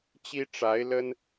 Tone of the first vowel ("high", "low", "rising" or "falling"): high